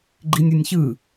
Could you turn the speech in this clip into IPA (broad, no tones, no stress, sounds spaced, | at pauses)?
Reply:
ɡ͡ǃ i nʲ u nʲ ç ɯ